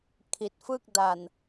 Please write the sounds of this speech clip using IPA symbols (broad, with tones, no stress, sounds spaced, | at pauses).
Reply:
kʰ i˨˩ t̚ f ɯ˥˩ k̚ d a˨˩ n